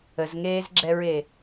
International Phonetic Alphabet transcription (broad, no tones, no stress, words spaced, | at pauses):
əzŋeːzɡ͡ǁɛɹe